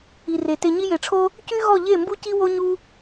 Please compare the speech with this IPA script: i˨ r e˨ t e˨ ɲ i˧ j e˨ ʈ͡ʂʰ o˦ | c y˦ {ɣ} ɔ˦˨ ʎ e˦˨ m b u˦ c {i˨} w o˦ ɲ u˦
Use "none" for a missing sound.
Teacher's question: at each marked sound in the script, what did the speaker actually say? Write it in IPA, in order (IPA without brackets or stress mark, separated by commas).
ɣ, i˦